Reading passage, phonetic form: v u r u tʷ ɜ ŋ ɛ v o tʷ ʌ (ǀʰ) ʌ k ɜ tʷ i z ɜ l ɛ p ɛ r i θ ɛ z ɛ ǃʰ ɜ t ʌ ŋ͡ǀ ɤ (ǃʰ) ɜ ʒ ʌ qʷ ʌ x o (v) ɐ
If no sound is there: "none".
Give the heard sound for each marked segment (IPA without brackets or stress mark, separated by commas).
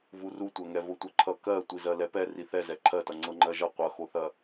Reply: ǃʰ, ŋ͡ǃ, θ